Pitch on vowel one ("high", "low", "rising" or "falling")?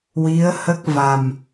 rising